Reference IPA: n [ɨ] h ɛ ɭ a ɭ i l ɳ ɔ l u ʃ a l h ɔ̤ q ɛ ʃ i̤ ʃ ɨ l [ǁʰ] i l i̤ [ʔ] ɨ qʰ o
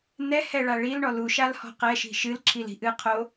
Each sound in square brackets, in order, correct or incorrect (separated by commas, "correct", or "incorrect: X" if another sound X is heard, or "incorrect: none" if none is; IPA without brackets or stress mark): incorrect: ɛ, correct, correct